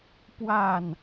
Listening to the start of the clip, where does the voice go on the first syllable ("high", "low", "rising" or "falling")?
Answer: falling